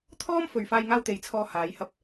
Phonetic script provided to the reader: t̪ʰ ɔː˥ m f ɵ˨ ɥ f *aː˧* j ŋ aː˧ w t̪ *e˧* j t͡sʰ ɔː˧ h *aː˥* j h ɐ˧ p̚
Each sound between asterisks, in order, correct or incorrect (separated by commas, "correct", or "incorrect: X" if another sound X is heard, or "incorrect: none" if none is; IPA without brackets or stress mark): correct, incorrect: e˨˧, incorrect: aː˨˧